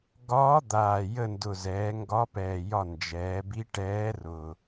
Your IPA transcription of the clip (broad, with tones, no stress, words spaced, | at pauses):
ɡɒː˧˥ d̪aː˨˩jə˦˨ndʊ˨˩zɛː˩˧ ŋɡɒ˧˥pɛː˨˩jɒ˦˨ nd͡ʒɛː˩˧bi˧˥ ʈɛː˧˥rʊ˨˩